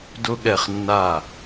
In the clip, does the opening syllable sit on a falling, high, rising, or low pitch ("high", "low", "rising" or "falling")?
high